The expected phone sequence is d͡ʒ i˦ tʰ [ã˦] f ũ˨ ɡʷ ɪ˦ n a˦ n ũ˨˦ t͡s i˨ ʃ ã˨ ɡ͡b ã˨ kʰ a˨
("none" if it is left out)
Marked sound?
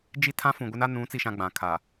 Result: ã˦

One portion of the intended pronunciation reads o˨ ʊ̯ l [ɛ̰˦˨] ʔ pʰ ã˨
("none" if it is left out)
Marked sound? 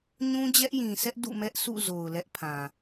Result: ɛ˦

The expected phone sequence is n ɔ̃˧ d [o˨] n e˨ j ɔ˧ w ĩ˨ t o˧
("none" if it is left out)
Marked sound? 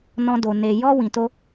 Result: o˨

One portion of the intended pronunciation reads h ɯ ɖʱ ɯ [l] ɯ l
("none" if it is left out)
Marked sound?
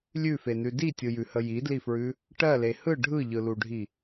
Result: ʎ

